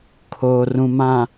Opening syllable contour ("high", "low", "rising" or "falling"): low